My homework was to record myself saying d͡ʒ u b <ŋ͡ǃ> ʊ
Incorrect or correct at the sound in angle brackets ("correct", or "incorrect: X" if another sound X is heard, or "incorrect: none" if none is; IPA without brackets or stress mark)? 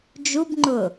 correct